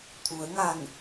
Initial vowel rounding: rounded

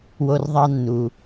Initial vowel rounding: rounded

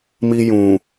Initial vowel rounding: unrounded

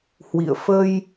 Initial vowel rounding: unrounded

